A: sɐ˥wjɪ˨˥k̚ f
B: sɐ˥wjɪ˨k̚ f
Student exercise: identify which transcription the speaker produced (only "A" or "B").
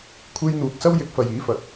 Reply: A